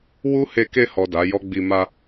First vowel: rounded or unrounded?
rounded